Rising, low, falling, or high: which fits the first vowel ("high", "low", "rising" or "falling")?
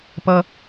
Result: high